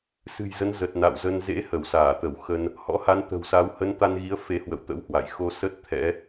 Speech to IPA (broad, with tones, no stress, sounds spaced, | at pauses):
s ɨ̤˨˩ j z ə˨˦ n z ə˨˩ t̚ n a̰˧˨ w z ə˧ n z ḛ˧˥ h ə˧˩ w s aː˧˩ t̪ ə˧˩ w x ə˧ n | h ɔ̰˧˥ h a˨˦ n t̪ ə̤˨˩ w s a˨˦ w h ə˨˦ n t̪ a˧ n ɣ i˨˦ ə̯ f e˨˦ h w ə̰˧˨ w t̪ ə̰˧˥ w h w a̰˧˨ j x o˧ s ə˦˥ t̚ t̪ʰ ɛ̰˧˥